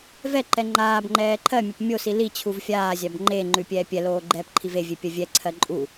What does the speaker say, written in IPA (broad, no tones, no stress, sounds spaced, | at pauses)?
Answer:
v ɛ ǃ ɛ ŋ͡ǃ aː b ŋ͡ǃ ɛː ǃʰ ɜ mʲ a p mʲ o s i l i t͡ɕʰ u v fʲ aː zʲ a b ŋ͡ǃ e ŋ͡ǃ ʉ pʲ ɛː pʲ ɛ l oː ɡ͡ǃ ɛː p ǃʰ i v e vʲ e pʲ ɜ vʲ ɛ ǀʰ ɜ ǃʼ u